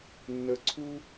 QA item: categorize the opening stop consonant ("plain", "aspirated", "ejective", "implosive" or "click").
click